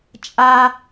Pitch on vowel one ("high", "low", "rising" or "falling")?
high